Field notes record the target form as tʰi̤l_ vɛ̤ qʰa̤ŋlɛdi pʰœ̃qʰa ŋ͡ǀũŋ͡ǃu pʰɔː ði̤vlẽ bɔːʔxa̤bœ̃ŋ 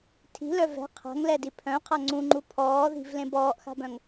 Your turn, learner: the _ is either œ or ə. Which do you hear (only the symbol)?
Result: œ